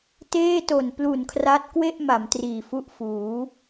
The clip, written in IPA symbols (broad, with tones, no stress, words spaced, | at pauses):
teː˥˩to˨˩nplu˨˩nkʰra˦˥t̚ kwe˥˩ʔ ma˩˦mtriː˨˩fu˦˥ʔ fuː˩˦